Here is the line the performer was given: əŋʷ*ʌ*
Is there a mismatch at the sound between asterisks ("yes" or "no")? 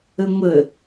yes